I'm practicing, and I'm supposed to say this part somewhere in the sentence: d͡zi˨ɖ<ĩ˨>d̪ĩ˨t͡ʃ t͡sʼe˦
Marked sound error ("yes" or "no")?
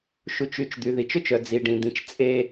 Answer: no